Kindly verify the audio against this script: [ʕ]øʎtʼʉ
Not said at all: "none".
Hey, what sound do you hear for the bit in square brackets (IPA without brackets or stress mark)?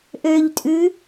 ʔ